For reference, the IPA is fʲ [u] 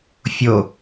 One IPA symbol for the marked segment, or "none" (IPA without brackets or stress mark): o